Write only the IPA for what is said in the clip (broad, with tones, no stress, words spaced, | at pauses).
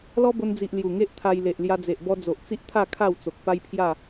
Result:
lɔ˦bo˧nd͡zi˨ʔ lju˨˩ŋe˦ʔt̪ʰa˧j le˨ʔlja˧d͡ze˨ʔ bɔ˧d͡zo˨ʔt͡si˦ʔt̪ʰa˥˧ kʰa˥˧wt͡so˨k̚ pa˦jpʰja˥˧